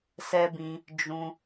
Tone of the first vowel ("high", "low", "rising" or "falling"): high